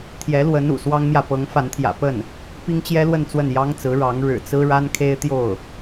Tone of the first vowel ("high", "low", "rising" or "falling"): rising